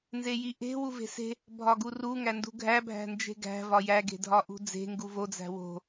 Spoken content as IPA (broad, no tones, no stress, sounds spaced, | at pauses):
n z e j i ʔ e̤ w u v e̤ s e̤ | bʱ ɒ ɡ u r u ŋ æ n d ṳ ɡʱ æ bʱ æ̤ n d͡ʒ e̤ ɡ æ̤ v ɒ j æ ɡ e̤ dʱ ɒ ʔ ṳ d͡z e̤ ŋ ɡ u v o d͡z æ̤ w o̤